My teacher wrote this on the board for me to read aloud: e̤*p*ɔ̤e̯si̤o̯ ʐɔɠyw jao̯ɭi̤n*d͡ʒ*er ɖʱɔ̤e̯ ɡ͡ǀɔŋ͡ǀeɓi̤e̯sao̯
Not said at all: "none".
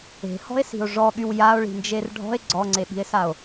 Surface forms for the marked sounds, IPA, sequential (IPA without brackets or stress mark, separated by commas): h, d͡ʒ